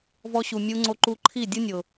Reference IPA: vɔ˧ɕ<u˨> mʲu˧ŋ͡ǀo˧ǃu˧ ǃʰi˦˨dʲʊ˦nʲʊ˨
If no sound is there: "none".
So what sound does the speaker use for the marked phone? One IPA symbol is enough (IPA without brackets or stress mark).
u˨